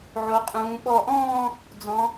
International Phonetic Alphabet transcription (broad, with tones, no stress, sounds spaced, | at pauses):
ʕ o˩˧ qʼ ũː˩˧ ɓ ɔ˧˩ ʔ ɔ̃ː˥˧ | d͡z ɔ̃˩˧